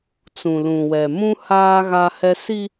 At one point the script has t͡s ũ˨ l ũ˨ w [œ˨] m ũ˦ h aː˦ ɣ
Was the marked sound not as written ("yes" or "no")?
yes